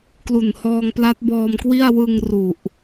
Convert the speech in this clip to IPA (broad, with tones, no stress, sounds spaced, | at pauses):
k l u˨˩ n h ɔː˧ ŋ p l a˦˥ t̚ b ɔː˧ m k w i˥˩ a̯ w ɯ˧ ŋ r u˨˩ ʔ